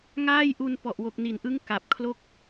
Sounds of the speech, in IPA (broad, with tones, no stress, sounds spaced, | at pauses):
ŋ aː˥˩ j ʔ u˧ n p ɔ˨˩ ʔ w o˨˩ k̚ n i˨˩ n ʔ ɯ˦˥ ŋ k a˨˩ p̚ kʰ l o˥˩ k̚